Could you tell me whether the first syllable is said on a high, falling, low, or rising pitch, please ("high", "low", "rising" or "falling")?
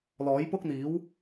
rising